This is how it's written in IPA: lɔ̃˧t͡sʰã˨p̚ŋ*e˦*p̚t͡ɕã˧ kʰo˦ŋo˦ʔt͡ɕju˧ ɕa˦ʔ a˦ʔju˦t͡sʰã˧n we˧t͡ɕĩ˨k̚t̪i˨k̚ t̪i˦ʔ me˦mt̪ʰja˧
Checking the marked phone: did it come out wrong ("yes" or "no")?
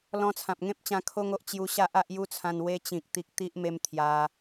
yes